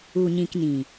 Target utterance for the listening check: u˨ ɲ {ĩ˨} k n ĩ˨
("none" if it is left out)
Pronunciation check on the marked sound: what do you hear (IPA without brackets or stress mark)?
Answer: ĩ˨